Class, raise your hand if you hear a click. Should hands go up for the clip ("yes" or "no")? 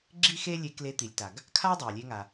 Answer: yes